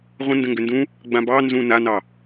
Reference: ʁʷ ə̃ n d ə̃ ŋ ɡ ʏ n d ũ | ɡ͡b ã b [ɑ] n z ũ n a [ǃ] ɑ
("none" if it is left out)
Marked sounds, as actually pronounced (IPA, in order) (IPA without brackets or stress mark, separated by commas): ɑ, n